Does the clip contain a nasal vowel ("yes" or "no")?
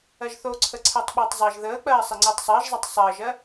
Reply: no